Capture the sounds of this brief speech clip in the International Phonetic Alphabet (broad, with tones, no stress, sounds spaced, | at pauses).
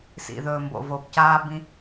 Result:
s ḭ˨ ð ɵː˨ m b o̰˨ v o˨ b c aː˧ b ĩ˧